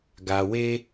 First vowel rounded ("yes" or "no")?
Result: no